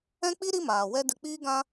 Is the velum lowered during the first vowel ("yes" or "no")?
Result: yes